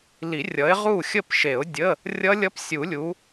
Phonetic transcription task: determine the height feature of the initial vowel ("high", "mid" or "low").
high